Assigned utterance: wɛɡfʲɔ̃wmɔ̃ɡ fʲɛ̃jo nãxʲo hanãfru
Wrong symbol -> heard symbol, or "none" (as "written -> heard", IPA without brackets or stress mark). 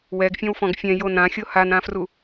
m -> f